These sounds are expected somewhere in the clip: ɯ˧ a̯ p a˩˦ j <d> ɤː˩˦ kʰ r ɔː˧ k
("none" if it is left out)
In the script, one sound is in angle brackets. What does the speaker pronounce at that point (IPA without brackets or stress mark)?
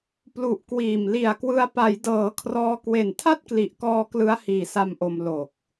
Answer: d